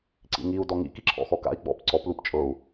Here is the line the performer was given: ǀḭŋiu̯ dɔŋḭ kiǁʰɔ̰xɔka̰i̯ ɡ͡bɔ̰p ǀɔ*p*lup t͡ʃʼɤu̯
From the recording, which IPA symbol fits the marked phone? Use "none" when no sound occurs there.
p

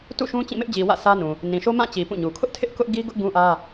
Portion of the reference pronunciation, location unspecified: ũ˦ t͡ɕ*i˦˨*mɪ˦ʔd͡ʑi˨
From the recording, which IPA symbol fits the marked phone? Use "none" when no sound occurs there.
ĩ˦˨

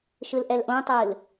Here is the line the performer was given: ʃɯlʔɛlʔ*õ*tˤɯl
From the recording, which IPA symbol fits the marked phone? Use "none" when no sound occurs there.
õ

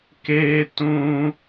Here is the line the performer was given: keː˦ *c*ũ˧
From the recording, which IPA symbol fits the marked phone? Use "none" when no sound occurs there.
t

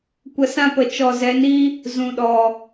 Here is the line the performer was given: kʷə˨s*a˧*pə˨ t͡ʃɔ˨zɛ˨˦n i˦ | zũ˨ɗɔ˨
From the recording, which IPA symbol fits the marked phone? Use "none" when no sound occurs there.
ã˧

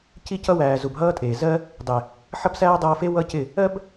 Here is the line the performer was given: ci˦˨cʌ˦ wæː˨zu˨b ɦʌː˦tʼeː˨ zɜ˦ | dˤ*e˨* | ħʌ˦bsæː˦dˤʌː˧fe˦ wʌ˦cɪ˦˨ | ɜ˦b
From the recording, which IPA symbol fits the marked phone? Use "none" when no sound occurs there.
e˨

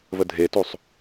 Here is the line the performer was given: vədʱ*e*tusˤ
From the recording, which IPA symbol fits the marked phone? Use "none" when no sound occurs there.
e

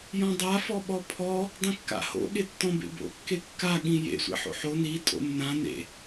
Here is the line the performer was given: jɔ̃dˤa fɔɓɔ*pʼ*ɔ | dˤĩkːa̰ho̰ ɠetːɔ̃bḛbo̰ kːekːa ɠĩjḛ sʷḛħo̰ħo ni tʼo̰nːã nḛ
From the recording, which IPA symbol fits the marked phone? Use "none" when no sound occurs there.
pʰ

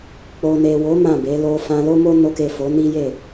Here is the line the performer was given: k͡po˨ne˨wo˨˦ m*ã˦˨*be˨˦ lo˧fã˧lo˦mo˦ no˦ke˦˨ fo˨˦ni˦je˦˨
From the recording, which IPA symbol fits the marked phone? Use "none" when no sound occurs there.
ã˦˨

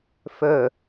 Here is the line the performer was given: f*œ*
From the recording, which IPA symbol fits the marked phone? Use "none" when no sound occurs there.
œ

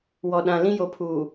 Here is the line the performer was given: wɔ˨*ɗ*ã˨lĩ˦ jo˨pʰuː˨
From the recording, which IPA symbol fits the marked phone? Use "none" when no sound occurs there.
ɗ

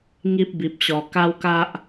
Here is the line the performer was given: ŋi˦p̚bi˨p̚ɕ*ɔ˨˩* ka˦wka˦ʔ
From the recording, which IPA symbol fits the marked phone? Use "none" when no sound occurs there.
ɔ˨˩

